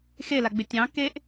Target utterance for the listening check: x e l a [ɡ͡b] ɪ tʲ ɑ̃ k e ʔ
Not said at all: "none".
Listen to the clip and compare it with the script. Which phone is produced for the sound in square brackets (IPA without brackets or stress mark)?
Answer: ɡ͡b